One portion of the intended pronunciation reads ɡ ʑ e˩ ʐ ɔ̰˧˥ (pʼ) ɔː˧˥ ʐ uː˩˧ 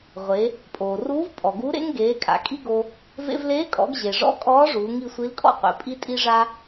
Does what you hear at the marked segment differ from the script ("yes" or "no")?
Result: yes